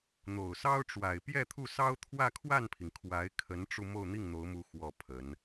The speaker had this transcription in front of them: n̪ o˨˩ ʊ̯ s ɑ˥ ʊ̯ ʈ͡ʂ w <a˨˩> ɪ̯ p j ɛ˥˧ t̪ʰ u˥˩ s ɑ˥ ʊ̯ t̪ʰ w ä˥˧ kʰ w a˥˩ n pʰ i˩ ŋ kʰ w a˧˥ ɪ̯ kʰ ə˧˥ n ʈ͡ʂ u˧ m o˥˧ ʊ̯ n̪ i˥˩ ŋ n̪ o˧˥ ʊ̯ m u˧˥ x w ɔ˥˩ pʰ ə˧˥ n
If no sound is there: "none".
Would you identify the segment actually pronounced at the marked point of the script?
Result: a˨˩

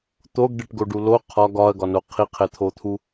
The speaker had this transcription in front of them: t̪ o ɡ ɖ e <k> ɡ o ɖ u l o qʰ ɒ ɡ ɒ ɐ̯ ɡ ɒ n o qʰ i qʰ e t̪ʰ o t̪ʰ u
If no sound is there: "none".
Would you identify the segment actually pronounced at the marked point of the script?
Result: ʈ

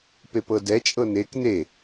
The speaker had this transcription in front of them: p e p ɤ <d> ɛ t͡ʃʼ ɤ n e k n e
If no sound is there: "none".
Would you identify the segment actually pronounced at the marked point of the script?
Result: d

